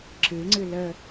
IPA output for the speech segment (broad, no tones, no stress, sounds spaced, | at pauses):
ǁ ɨ ŋ͡ǀ ɨ l ə